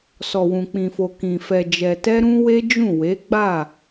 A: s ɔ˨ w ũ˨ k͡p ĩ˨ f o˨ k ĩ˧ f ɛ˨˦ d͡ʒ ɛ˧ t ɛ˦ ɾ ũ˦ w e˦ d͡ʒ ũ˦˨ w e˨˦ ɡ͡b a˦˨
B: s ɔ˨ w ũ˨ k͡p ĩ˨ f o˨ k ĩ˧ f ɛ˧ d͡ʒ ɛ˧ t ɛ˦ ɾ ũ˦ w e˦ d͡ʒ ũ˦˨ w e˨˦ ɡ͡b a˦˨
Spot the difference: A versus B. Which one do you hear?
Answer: B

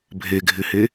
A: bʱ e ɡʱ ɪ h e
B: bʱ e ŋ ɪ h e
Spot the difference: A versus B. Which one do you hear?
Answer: A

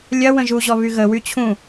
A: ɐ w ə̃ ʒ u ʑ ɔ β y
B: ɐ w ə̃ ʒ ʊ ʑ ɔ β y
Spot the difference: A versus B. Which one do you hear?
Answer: A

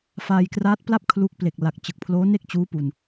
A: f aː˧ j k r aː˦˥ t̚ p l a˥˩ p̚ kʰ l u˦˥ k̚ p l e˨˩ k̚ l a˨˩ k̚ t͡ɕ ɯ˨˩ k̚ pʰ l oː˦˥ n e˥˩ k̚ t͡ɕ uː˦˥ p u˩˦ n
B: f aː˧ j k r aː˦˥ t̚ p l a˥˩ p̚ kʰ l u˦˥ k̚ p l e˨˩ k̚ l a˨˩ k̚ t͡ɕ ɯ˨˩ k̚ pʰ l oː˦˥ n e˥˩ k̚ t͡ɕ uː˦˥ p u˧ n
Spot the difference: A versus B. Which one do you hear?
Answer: B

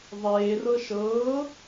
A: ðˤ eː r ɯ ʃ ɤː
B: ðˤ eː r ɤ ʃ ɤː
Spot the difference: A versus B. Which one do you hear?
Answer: B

